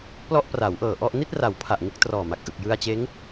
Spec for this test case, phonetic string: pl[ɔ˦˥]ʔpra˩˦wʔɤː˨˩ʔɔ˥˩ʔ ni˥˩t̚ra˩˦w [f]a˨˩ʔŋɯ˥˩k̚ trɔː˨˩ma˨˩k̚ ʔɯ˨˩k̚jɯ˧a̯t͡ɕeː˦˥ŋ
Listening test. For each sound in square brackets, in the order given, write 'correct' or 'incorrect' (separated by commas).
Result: incorrect, incorrect